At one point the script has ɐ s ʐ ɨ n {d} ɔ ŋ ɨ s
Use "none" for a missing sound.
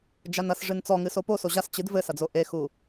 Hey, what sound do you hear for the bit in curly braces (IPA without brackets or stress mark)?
t͡s